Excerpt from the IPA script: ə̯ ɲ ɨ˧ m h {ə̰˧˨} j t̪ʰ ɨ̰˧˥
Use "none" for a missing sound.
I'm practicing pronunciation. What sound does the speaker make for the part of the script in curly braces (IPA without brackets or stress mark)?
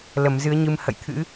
ə̰˧˨